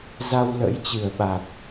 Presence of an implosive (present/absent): present